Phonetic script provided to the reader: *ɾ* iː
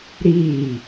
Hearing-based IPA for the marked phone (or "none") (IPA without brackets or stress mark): ɾ